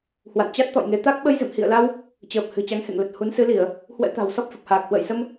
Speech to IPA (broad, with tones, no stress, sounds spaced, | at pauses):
h w a̰˧˨ n t͡ɕ a˦˥ t̚ t̪ ɔ̰˧˨ j ŋ e˨˦ t̪ a˦˥ k̚ ɓ ə˧ j z ɨ̰˧˨ m h ḭ˧˨ ə̯ l a˧ w | t͡ɕ əː˨˩ p̚ h ɨ̤˨˩ t͡ɕ a˨˦ ŋ h ḛ˧˨ ŋ l ə˨˩ t̚ h u˨˦ n s ɨ˨˦ l i˧˩˨ ə̯ | h w ɛ̰˧˥ t̪ a̤˨˩ w s ɔ˦˥ p̚ f ə˨˩ p̚ h aː˨˩ k̚ h w ə̰ː˧˨ j s ə˧ m